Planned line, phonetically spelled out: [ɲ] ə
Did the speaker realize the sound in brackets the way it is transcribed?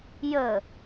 no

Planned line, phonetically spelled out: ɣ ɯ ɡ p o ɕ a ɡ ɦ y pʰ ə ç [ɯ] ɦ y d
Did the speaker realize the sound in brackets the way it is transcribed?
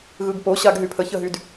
no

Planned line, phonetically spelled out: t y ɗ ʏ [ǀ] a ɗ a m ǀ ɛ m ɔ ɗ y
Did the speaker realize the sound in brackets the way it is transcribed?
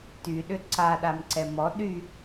yes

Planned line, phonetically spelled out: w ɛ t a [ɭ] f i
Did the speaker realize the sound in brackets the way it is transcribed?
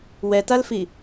no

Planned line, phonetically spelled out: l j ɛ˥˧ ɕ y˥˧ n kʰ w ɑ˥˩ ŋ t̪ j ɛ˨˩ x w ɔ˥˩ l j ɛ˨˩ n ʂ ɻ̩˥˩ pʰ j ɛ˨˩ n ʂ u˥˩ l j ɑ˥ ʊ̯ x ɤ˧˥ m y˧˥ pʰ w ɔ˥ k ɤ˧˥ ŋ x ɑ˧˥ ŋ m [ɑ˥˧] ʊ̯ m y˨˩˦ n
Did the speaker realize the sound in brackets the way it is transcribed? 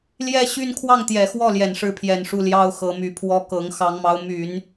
no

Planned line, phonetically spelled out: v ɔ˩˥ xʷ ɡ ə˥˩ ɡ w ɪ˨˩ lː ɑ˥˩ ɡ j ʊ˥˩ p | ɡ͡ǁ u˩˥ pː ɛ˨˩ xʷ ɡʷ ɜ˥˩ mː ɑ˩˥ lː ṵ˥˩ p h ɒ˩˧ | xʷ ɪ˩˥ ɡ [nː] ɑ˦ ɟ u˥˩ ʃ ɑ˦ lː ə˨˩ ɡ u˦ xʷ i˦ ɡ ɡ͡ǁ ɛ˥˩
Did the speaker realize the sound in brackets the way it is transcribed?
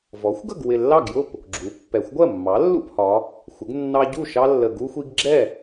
yes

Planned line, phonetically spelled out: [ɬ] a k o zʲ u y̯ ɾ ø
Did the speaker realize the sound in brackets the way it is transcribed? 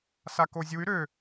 no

